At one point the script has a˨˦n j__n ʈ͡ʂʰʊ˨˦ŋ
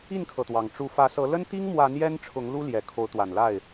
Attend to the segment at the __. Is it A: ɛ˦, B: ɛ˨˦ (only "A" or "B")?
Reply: A